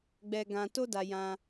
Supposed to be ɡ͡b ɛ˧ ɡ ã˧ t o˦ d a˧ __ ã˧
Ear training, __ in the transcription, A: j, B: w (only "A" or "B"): A